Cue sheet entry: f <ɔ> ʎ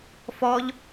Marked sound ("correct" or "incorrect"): correct